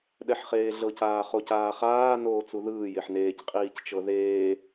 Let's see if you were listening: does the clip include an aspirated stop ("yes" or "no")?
no